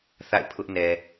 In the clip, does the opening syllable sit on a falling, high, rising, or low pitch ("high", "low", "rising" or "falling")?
falling